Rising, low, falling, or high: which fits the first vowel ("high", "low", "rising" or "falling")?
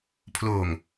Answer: low